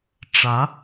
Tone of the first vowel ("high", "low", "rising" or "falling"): rising